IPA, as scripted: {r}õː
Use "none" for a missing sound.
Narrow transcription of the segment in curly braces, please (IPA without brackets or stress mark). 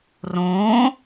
r